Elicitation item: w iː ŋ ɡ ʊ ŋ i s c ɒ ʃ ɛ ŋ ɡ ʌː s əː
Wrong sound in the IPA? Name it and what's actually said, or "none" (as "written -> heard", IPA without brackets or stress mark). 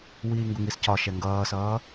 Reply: əː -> ʌː